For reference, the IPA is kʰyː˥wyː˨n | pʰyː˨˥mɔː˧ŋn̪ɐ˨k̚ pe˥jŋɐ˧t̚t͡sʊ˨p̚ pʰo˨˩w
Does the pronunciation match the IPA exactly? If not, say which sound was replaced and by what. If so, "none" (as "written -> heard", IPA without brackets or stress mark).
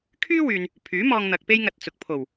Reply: p̚ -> k̚